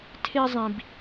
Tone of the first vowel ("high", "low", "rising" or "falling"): high